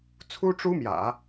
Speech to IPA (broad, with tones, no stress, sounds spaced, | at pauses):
t͡sʰ u˥ ʈ͡ʂ u˥ m j ä̰˨˩˦